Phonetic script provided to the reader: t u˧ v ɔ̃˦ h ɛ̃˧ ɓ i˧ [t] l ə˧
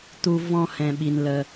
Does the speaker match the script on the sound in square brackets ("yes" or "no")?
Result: no